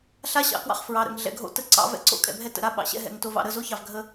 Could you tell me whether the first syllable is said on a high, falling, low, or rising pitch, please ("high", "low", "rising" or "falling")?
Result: high